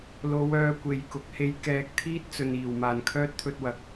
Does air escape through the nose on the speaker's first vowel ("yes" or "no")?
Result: no